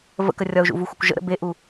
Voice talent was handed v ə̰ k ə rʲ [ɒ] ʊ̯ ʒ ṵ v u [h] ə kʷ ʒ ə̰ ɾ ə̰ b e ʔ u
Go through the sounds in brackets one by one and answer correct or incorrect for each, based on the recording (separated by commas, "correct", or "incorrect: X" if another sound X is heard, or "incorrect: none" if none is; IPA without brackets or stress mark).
correct, incorrect: xʷ